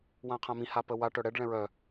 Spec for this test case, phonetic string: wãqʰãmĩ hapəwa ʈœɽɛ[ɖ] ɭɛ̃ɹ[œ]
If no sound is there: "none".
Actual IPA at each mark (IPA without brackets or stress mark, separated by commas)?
ɖ, œ